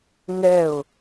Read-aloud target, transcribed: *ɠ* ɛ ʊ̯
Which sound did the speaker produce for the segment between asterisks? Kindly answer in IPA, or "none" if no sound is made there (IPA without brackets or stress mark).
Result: ŋ